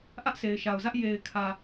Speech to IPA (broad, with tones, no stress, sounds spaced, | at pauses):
ʔ ä˦ ʔ s e˨ ɪ̯ ʃ a˨ ʊ̯ z ä˦ ʔ j e˨ ɪ̯ kʰ ä˨